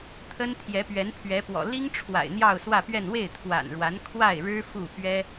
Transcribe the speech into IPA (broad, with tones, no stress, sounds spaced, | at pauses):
t̪ʰ ə˥ n t̪ʰ j ɛ˧˥ p ɥ ɛ˧˥ n pʰ ɥ ɛ˧˥ p w ɔ̰˨˩ l i˥ ŋ ʈ͡ʂʰ w a̰˨˩ ɪ̯ n̪ j ɑ˥˧ ʊ̯ s w ä˥˧ p ɥ ɛ˥˧ n w e˥˩ ɪ̯ t̪ʰ w a̰˨˩ n ɻ w a˧˥ n kʰ w a˥˩ ɪ̯ ɻ ɻ̩˥ f u˥˩ p ɥ ɛ˥